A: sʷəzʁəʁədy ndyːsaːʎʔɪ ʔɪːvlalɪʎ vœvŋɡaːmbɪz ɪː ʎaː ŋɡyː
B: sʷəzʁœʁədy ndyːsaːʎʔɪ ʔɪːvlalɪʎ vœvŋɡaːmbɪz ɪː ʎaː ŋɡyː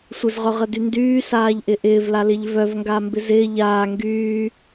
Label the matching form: B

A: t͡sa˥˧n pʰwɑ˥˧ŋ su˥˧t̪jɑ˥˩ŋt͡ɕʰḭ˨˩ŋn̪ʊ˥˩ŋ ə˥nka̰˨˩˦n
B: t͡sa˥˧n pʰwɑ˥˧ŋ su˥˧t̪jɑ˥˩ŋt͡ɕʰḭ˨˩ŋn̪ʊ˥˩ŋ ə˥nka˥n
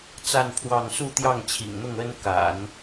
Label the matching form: A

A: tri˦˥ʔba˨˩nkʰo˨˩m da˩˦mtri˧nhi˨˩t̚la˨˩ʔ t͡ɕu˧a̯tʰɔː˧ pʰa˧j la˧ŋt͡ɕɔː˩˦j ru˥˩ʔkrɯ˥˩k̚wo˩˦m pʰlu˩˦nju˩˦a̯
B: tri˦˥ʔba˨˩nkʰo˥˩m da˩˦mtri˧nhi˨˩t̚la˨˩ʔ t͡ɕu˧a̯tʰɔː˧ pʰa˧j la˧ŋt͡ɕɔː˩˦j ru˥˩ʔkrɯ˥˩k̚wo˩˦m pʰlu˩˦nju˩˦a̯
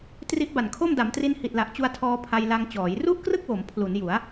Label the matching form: B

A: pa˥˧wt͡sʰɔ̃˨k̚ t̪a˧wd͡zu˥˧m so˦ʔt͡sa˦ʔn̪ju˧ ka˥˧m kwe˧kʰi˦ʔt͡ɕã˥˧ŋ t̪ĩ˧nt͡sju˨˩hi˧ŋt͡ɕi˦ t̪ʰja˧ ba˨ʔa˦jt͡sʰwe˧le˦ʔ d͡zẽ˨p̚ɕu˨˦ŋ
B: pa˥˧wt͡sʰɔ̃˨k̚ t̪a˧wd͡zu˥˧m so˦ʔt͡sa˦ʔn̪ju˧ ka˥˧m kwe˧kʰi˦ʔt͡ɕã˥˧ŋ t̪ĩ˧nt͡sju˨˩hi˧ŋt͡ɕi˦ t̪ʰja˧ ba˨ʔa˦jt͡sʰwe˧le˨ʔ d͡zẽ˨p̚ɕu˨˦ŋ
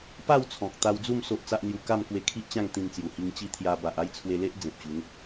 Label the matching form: A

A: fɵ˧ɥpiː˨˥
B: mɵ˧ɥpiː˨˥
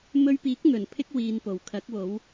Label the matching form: B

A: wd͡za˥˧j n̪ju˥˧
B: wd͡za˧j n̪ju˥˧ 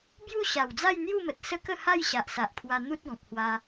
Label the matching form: A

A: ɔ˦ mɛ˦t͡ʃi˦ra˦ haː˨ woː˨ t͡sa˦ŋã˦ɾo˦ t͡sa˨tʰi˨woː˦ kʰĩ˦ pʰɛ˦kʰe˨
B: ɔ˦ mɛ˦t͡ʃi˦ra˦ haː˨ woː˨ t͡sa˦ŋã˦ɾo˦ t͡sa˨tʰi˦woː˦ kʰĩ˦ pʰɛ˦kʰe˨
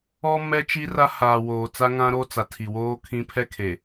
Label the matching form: A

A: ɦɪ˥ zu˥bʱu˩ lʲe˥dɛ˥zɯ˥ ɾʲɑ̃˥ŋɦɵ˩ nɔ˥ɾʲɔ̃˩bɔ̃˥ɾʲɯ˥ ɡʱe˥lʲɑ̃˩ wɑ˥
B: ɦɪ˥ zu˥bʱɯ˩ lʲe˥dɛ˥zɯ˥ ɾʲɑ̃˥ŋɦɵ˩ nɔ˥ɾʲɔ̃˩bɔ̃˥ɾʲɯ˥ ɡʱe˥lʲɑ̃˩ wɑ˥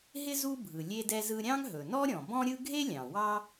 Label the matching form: B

